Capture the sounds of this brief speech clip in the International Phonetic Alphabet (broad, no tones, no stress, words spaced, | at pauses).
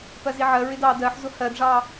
pɜziʕɜ ɹɪdɑ dɜħzʊ hɜdʐɑ